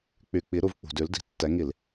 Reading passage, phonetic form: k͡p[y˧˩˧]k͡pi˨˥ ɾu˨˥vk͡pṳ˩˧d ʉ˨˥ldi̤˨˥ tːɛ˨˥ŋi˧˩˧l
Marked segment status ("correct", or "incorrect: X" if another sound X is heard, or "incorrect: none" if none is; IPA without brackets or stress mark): correct